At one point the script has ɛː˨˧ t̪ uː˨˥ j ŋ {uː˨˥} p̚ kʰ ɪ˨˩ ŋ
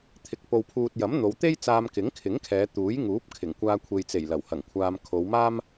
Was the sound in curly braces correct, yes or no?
yes